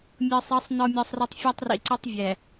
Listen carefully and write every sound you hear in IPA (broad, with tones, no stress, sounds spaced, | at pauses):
mʲ ɤ˨ sˤ ɤ˨˦ sˤ n ɔ˨ mʲ ɔ˨ sˤ r i˨ tˤ fʲ ɔ˦ tˤ r ḭ˨ ǀ ɯ˦ tˤ vʲ ɛ˨